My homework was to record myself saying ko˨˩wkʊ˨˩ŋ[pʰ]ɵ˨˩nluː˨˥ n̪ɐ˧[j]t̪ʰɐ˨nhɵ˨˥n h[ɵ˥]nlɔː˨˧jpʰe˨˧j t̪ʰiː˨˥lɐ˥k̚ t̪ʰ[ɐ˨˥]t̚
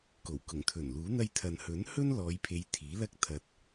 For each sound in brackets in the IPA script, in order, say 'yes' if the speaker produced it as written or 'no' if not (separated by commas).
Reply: no, yes, yes, no